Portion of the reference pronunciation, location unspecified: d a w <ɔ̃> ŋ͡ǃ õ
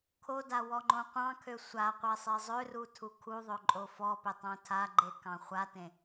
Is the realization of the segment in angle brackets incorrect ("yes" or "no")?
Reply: yes